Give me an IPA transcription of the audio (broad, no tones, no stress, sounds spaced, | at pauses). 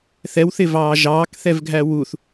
θ ɛ w θ ɪ v ɑː ʒ ɑː k θ ɛ v ɡʱ æ w u θ